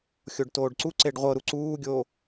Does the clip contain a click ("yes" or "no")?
yes